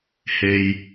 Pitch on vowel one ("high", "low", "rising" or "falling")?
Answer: low